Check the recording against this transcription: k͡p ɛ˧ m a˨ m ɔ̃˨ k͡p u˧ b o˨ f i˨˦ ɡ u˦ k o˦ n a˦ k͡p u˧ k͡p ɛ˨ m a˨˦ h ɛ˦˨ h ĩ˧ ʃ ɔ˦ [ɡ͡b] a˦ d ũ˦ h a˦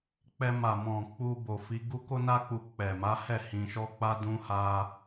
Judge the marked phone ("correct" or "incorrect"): incorrect